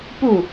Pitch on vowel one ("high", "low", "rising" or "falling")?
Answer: falling